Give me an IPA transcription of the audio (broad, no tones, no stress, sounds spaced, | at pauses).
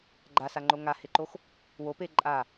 ɡ͡ǃ a s a ŋ͡ǃ o ŋ a h e ǃ o x | w o p e ǃʼ a